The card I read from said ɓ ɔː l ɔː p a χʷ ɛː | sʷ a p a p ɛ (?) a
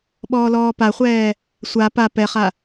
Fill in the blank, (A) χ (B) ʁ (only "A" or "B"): A